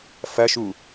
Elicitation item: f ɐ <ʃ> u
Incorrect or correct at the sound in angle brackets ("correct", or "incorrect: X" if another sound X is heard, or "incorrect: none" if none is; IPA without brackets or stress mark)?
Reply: correct